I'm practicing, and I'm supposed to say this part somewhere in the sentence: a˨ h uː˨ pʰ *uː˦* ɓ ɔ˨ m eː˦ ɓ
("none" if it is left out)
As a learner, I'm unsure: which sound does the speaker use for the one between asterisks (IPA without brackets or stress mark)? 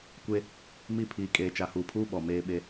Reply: uː˦